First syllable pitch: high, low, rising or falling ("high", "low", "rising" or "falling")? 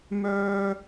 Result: high